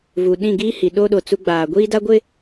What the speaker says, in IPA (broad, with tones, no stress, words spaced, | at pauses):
vu˨ɗĩ˦˨ɡiː˦hi˨ ɗoː˦ɗo˨ t͡su˦ɡ͡baː˨ ɡʷiː˦da˦ ɡʷɪ˦